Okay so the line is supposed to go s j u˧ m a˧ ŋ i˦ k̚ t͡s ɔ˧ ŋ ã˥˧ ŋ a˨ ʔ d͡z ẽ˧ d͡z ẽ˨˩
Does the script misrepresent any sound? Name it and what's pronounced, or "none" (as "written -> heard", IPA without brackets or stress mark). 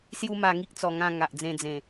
none